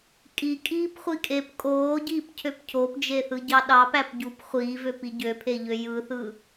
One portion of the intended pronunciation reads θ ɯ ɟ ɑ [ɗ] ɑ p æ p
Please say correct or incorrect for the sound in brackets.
correct